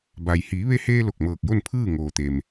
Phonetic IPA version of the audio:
b a˩ j h iː˩˧ ʋ e˧ h eː˧ l o˧˩ k̚ m ɤː˧˩ k̚ j o˥˨ n pʰ ɯː˥˨ ŋ oː˩ t̪ e˩ m

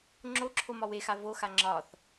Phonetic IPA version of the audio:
ŋ͡ǁ o ǁʰ o m ɒ w e x a v o x a ŋ͡ǁ ɒ θ

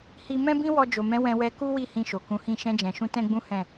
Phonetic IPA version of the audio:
h i˧ m ɛ̃˦ b ĩ˦ w ɔ˧ d͡ʒ o˨ m ɛ̃˨˦ w ɛ̃˧ w ɛ˧ k u˦ w i˦˨ h ĩ˧ ʃ o˨ k ũ˨˦ h ĩ˦˨ ʃ ɛ̃˧ d͡ʒ ɛ̃˨ ʃ ũ˧ t ɛ̃˦ ɡ͡b ũ˦ h ɛ̃˦˨

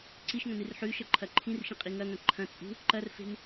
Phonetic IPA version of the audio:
ǀ i ʃ ŋ ɐ̃ n ɨ r ħ ʉ ʃ ɐ ǃʰ ɐ ǃʰ ĩ r ʃ ĩ qʼ i ŋ ɐ ŋ ɐ̃ ǃʰ ɐ̃ t͡sʼ ṳ | ǃ ɐ r f e̤ n

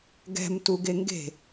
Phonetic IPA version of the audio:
ɡ ɛ̤ m t u ɡ e ŋ ɡ e̤

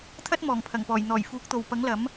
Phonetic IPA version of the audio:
t̪ʰ ɐ˥ t̚ m ɔː˨˩ ŋ pʰ ɐ˨˩ ŋ p ɔː˨˩ j n̪ ɔː˨˩ j f uː˨˥ k̚ t̪ o˨ w p ɐ˨˥ ŋ l ɐ˨˥ m

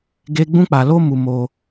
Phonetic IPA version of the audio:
ɡ e˦ ɡ͡b ũ˦ k͡p a˧ l o˦ m u˧ m o˧

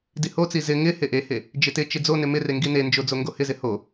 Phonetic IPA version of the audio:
d i h o t͡s i z ɪ ŋ ɪ h e ʔ e h e | d͡ʒ ɪ t ɪ t͡ʃ ɪ d͡z o n ɪ m ɪ r e ŋ ɡ i n e n d͡ʒ o d͡z o ŋ ɡ o h ɪ z ɪ h o

